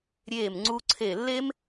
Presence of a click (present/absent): present